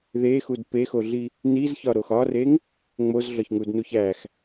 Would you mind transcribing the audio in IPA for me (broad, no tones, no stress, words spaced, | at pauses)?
ðexud pexoɮi | nizçɒɾox ɒreŋ | ŋ͡mozɮɒçŋudnuç æx